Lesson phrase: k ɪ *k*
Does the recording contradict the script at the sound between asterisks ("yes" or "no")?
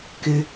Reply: yes